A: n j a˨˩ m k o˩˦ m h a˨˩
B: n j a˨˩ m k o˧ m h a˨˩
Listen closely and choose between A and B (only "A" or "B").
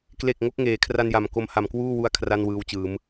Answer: B